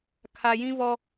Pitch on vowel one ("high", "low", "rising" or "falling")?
low